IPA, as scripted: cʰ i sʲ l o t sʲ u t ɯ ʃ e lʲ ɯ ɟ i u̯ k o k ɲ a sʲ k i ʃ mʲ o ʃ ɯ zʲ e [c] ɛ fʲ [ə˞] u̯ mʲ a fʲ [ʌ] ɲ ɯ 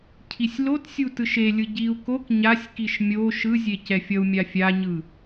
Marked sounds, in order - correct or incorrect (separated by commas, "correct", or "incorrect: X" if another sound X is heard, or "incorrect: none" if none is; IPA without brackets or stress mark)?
correct, incorrect: ʌ, incorrect: a